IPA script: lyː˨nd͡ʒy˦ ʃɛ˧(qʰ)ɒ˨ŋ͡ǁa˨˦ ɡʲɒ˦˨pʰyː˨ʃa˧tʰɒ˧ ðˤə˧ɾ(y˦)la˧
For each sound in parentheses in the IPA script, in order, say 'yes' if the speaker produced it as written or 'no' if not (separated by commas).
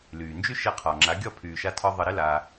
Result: yes, no